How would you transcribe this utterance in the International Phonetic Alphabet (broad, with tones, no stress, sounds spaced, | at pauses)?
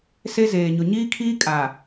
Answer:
s e˦ z eː˨ ɲ ʊ˨ ɲ iː˦ kʰ iː˦ kʼ a˨